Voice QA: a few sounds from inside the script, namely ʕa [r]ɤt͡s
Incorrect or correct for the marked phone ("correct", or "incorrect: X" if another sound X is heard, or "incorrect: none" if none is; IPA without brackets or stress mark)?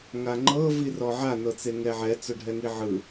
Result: incorrect: n